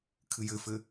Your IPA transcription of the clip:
kʰɨjɘfɘ

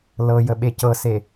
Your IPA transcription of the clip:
lɤjə ɓecɤse

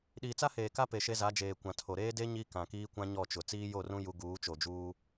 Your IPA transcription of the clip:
ɗiː˨t͡sa˦heː˨ka˦ pe˨ʃe˦za˨˦ d͡ʒeː˨kʷã˨tʰo˨ ɾeː˦de˦ ɲi˦kã˨kiː˦ kʷã˦ɲɔ˦˨t͡ʃʊ˨ t͡siː˦jo˦˨rũ˦ ju˦ ɡuː˨˦t͡ʃo˨d͡ʒuː˦

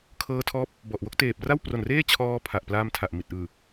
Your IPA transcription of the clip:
kʰɤː˦˥tʰɔː˦˥p̚ | bɔ˨˩ʔwo˥˩k̚teː˨˩p̚ ra˥˩wpro˨˩nreː˥˩t͡ɕʰɔː˧ pʰa˨˩ʔplaː˧mtʰa˨˩ʔmi˨˩t̚ ʔɯː˨˩

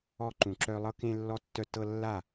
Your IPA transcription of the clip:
ɔ˧ǃũ˨ ǁœ˧lˠɤ˦ kẽ˧lːɔ˧tːœ˧ tɤ˧lːa˦˨

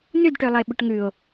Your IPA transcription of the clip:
nʉdʈølˠəe̯ɓʏʈ ŋʉo̯

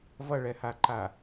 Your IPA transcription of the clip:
vʌɭɛhaǃa

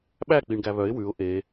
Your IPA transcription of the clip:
ɓæk͡piɳ ɡæβœɪ̯ wʉʊ̯ ʔe

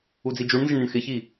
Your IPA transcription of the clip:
ud͡zid͡ʒuɳnzɪɳ nɪɳxɪçi

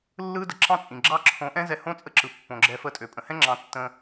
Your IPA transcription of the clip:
lːɯ˦də˨ ǁɑ̃˦t͡sʼĩ˨ɡ͡ǁɑ˦ ǁʰõ˨˦ ʔɛ̃˦zɛ˧ hõ˦t͡sʼə˦ǁɯ˨ pːõ˨ɡ͡ǁɛ˧fə˦˨tʼø˨ pʼə̃˨hɛ̃˦ ŋ͡ǁɑ̃˨˦ tːə̃˧

